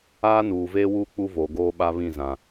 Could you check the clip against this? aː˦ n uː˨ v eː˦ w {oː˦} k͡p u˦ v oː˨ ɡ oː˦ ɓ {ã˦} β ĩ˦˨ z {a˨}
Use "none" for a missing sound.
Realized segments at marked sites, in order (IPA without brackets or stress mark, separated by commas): uː˦, a˦, ã˨